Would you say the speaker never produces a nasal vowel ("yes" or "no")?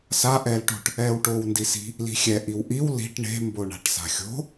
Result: yes